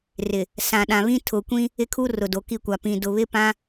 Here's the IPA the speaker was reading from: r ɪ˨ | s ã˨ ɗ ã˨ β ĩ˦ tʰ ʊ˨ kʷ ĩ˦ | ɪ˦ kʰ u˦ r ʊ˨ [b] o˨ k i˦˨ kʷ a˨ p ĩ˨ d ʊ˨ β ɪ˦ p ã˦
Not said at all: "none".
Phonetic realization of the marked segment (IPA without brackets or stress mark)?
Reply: d